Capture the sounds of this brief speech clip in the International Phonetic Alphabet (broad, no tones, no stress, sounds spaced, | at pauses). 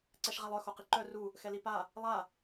ǀ ɛ ʃ ʁ a lˠ œ x o q i ǃ œ r u | x ɛ l i p a | lˠ a